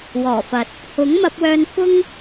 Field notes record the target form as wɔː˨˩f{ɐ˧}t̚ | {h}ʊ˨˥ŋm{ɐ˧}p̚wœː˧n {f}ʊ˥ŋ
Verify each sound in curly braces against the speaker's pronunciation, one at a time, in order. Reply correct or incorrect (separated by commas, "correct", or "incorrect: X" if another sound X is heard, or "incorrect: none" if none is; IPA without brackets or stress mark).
incorrect: ɐ˨, correct, correct, correct